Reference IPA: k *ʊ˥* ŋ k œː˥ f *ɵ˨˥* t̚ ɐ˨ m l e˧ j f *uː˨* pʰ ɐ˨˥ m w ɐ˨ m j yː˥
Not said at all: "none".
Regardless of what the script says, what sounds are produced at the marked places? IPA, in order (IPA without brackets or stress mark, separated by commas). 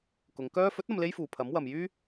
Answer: ʊ˨˧, ɵ˨˥, uː˨